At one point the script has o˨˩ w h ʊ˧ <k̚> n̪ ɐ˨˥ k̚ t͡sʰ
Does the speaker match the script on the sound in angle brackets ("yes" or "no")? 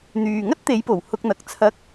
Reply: yes